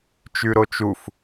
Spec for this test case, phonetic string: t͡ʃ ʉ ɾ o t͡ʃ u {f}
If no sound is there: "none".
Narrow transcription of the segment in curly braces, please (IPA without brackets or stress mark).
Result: f